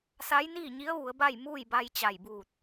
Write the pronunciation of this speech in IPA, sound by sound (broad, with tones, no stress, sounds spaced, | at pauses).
s a˧˥ j n iː˥˨ ɲ i˧˥ ə̯ ʋ u˩˧ ə̯ b a˥˨ j m uː˥˨ j b a˧ j t͡ɕ a˧˩ j b uː˧˩ t̚